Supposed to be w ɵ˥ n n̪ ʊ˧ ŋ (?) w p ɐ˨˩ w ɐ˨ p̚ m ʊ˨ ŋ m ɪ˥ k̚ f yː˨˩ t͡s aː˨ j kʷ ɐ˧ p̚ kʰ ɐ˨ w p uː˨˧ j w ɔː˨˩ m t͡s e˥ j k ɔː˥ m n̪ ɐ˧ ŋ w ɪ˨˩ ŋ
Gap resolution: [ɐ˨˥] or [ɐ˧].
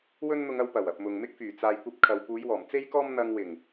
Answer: ɐ˧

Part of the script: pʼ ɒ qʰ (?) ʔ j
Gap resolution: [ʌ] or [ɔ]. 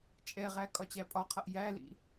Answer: ʌ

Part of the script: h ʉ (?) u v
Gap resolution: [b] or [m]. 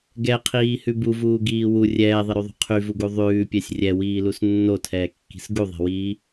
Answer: b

